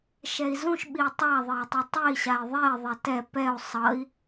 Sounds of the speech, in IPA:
ʃ ɛ i̯ z ũ ʃ ɓ i u̯ tˤ a ðˤ e i̯ tˤ ʌ tˤ e i̯ ɕ a i̯ ðˤ e ðˤ ɛ t ɛ p ɛ u̯ sˤ ʌ i̯

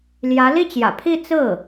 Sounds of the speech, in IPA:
l j ä˧˥ l i˥˩ t͡ɕ j ä̰˨˩ pʰ i˥˧ t͡s ɹ̩˥˩

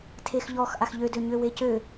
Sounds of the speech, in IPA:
tʰ e x ʎ ɔ x ʔ a x ʎ ø d ø ɲ ø w e c ø

